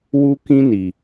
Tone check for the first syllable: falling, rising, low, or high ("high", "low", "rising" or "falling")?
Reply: high